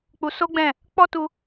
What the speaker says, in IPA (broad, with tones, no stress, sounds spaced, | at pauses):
k͡p u˧ s o˦ ɡ͡b ɛ̃˦˨ | k͡p ɔ˦ t u˧